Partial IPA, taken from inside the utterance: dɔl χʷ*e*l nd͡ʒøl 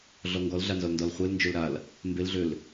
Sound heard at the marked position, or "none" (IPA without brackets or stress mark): e